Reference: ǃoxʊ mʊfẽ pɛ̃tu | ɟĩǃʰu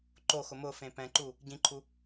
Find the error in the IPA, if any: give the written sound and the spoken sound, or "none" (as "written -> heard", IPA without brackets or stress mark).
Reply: t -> ǃ